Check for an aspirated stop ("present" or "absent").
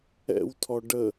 present